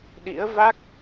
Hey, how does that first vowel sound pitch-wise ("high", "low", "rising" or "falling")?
rising